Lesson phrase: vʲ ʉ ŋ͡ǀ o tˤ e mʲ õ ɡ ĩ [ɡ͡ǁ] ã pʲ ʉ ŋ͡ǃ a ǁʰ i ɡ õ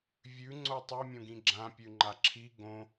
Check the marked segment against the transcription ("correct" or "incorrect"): correct